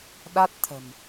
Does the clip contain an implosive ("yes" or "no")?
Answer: yes